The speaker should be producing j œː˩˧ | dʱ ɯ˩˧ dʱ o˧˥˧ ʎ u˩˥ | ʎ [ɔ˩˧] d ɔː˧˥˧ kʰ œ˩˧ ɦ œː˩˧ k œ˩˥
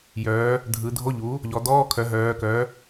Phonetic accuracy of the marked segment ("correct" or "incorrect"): correct